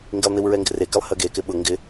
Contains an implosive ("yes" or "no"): yes